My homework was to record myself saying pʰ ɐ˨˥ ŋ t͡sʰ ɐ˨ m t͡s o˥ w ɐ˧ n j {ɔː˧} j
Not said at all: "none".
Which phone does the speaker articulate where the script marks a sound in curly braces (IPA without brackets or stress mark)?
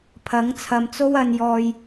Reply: ɔː˧